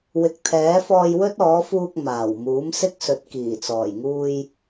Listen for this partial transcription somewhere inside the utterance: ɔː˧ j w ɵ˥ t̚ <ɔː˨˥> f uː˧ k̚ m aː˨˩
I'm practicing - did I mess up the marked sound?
no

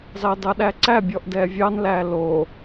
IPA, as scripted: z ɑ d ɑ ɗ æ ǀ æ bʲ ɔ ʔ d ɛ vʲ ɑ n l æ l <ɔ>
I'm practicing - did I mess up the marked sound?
yes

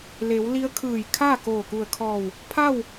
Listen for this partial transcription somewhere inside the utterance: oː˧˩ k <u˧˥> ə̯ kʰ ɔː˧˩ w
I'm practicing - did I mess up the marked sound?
yes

